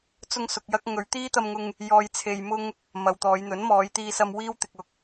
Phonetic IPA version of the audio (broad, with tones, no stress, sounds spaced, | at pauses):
t͡s ʊ˧ ŋ s ʊ˨ k̚ j ɐ˧ k̚ ŋ ɵ˨˧ ɥ t̪ iː˥ t̪ ɐ˧ m ŋ ʊ˧ ŋ | j ɔː˨ j t͡sʰ e˨ j m ʊ˧ ŋ | m ɐ˨ w t̪ ɔː˨˧ j n̪ ɵ˨˥ n m ɔː˨˧ j t̪ iː˧ s ɐ˧ m w iː˥ w t̪ ɪ˨ k̚ ʊ˨ k̚